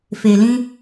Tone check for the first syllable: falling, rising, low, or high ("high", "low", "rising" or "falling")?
low